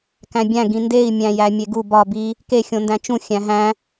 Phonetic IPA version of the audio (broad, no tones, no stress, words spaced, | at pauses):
kæ̃bʲæ̃ ɡĩndei̯ mʲæ̃jæmʲeɡu bɒ bi | ke xʲõndæ̃t͡ʃũ xʲæ̃ɦæ̃